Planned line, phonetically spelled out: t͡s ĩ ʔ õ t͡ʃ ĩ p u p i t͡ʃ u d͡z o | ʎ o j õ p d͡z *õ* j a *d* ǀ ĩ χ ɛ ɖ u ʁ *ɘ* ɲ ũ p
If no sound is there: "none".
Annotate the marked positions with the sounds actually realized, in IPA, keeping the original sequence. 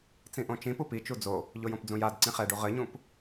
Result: ũ, d, ɘ

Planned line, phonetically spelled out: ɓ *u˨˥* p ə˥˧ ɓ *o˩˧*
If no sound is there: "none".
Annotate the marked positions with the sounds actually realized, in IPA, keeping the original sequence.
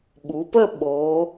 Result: u˩˧, o˩˧

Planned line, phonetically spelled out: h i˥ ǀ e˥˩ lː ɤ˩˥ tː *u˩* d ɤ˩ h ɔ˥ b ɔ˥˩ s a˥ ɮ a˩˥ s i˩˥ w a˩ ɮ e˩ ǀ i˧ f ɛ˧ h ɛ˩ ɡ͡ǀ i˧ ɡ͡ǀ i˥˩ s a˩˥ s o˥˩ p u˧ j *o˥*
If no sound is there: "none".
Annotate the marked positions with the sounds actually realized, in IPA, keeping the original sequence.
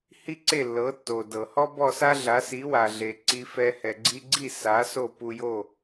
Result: o˩, o˥˩

